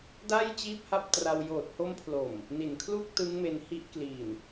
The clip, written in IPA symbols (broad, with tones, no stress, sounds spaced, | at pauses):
d a˥˩ j t͡ɕ iː˥˩ p̚ h a˥˩ p̚ t r a˧ w j oː˨˩ t̚ h o˦˥ m pʰ l o˨˩ m | n i˨˩ n kʰ l u˥˩ k̚ t ɯ˦˥ ŋ m e˧ n h i˦˥ ʔ k l i˨˩ n